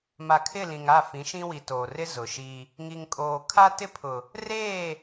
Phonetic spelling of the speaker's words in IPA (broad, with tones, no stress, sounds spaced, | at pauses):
m a˨ kʰ ɪ˦˨ l ĩ˨ ŋ a˦˨ f ĩ˨˦ ʃ ĩ˦ w i˨ t oː˨ r ɪ˦ z ʊ˨ ʃ i˦ | ŋ i˨ ŋ kʼ oː˨ kʰ a˦ t ɪ˦ pʰ ʊ˨ | r eː˦˨